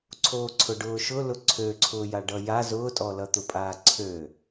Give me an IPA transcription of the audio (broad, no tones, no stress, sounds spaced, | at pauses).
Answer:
ǀʰ oː ǀʰ ʊ ɖ ʊː ʃ ʊ l ʊ ǀʰ ø ǀʰ ʊː j a ɖ ʌ j a z ʊː tʼ ɔ l ʌ t̪ ʊ pʼ aː ǀʰ ø